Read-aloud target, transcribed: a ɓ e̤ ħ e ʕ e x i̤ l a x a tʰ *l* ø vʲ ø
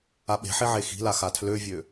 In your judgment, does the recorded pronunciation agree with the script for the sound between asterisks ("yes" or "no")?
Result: yes